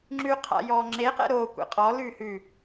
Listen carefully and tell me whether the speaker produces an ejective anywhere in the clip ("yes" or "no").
yes